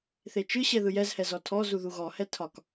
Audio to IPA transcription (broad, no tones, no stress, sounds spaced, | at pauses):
θ e t͡ʃ ɯ ɕ ɛ ð ɯ j ɛ z h ɛ z ɔ tʰ ɔ z u ð u ɣ ɔ h ɛ tʰ ɒ k